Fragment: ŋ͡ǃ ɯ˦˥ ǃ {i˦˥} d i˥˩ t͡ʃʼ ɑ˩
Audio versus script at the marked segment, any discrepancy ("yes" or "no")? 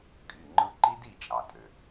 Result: no